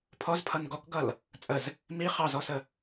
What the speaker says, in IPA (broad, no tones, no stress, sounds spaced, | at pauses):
pʰ ɔ z pʰ ʌ n ɡ ɔ k ɡ ʌ l | t͡sʼ ə z | m i χ ɑ z ɔ s ə